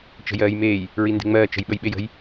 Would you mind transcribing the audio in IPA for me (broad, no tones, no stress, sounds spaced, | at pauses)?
t͡ʃ ə̤ j ɜː j m eː j | ɹ i n d e̤ ŋ͡m ɜː t͡ʃ ə̤ j ɓ ə j ɓ e j ə̤ j